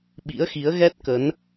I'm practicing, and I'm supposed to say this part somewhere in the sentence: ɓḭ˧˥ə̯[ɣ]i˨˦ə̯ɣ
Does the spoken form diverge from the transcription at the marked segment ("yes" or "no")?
yes